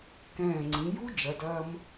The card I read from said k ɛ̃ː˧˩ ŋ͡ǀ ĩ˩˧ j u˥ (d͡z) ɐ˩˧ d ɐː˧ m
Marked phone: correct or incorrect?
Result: incorrect